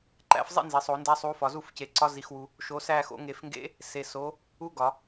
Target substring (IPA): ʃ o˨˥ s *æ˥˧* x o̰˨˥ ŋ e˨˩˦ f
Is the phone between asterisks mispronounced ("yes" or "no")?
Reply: no